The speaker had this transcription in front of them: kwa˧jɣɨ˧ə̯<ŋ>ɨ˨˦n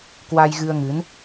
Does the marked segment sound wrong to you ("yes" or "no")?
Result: no